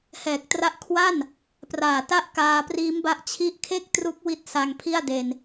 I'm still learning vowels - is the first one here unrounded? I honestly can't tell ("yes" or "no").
yes